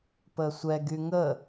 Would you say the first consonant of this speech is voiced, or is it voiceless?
voiceless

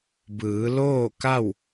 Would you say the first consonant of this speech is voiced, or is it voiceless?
voiced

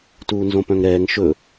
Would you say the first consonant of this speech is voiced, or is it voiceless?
voiceless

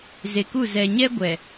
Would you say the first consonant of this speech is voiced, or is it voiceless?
voiced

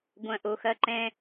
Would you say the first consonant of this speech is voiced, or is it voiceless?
voiced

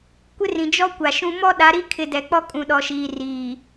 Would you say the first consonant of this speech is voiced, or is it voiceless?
voiceless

